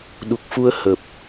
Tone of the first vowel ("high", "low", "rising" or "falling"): low